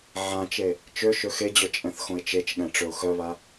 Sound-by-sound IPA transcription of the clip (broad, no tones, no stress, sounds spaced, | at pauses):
ʕ ã t͡ʃ e | t͡ʃ ø ʃ ø x e d͡ʑ œ t͡ʃʼ ɛ̃ θ x õ ɪ̯ t͡ʃ e t͡ʃ ɠ ɛ̃ ʈ͡ʂ ø ʊ̯ x œ β a